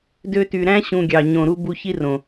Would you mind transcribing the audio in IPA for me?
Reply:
d ø˧ t y˨ ɾ æ̃˦ ɕ ũ˨ ɡʲ ɑ˨ ɲ õ˨ ɾ u˧ b u˧ ç i˦ r õ˨

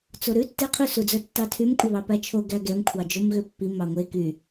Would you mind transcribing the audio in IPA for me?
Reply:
t͡s o ɾ ʉ tː e qʰ ʉ s u d͡z œ tː ɑ tʰ y m kʷʼ œ β ɑ p æ t͡ʃʰ o ɡ æ ɡ ɛ m kʷʰ ɑ d͡ʒ o m ɣ ø pː i m ɑ ŋʷ e k y

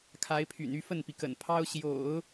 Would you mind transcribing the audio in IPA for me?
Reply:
kʰ a˧˥ ɪ̯ pʰ y̰˨˩ n y˥˧ f ə˥˩ n p i˩ k ə̰˨˩ n pʰ ɑ˥ ʊ̯ ɕ j o̰˨˩˦ ʊ̯

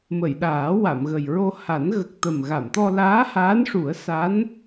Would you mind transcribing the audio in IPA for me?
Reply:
m ə˨˩˨ j ɗ aː˨˩˦ w a˨˩˨ m ɣ ə˨˩ j ɹ o˧ h a˨˩˦ n ɣ ə˨˩ k̚ t̪ ə˨˩ m ɣ a˨˩˨ m t̪ ɔ˧ l aː˧˥ h aː˧˥ n ʂ u˨˩˦ ə̯ s a˧˥ n

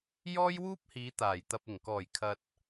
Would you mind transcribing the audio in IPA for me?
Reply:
j ɔː˥ j w uː˥ p̚ h iː˨˧ t̪ aː˨˩ j t̪ ɐ˨ p̚ ɪ˨˩ ŋ k ɔː˨˩ j kʰ ɐ˨ t̚

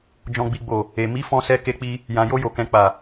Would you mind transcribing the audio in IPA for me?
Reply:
d͡ʒ ɔ̃˨ ɡ͡b i˨ ɡ͡b o˨ | e˨ m i˨˦ f ɔ̃˧ s ɛ˧ k e˧ k͡p i˧ | j ã˨ j o˧ j o˨ k ɛ̃˨ k͡p a˨

